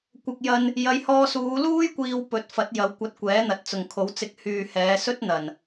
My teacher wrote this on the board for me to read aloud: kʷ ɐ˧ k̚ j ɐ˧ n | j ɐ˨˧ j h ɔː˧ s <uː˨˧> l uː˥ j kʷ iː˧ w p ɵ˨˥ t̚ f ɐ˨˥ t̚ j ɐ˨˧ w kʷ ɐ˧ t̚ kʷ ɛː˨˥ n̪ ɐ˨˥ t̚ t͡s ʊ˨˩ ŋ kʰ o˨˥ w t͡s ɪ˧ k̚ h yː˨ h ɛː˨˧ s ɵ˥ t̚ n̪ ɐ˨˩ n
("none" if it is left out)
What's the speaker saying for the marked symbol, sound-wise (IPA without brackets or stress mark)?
uː˨˧